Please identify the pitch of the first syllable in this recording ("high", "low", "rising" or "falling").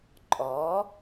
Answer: rising